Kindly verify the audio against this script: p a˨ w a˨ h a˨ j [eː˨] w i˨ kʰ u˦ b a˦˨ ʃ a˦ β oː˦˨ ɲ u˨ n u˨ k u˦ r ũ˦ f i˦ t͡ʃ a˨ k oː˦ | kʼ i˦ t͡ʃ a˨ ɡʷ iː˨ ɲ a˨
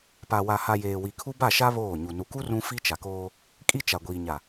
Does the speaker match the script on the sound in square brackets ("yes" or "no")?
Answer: yes